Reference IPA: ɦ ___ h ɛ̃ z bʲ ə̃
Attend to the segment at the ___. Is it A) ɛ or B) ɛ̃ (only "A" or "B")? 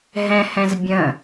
B